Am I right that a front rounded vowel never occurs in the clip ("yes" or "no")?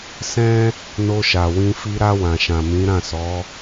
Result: yes